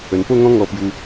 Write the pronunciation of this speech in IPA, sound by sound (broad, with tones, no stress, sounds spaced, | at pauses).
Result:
ə˨˩ n p o˥˧ ŋ ɔ̃˦ ŋ ɔ˧ p j u˧